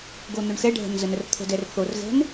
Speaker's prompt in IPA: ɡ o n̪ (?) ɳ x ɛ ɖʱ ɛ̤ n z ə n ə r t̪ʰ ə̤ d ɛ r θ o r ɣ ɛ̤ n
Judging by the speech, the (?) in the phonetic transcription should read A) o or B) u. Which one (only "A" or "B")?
A